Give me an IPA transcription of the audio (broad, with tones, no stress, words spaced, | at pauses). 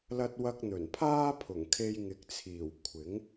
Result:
lɐ˧t̚wɐ˧k̚ n̪ɵ˨˩n pʰaː˥pʰʊ˨˩ŋkʰe˧j ŋɪ˨˥k̚t͡sʰiː˨˩w kʷʰɪ˨˥ŋ